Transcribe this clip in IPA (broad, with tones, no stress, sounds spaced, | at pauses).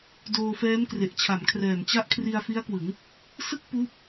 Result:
d oː˧ f ɛː˦˥ m k r e˨˩ ʔ t͡ɕʰ a˩˦ m kʰ r ɛː˨˩ m t͡ɕ a˦˥ ʔ kʰ r i˧ a̯ f i˦˥ a̯ k w ɯ˩˦ ŋ | s ɯ˥˩ k̚ p uː˦˥ p̚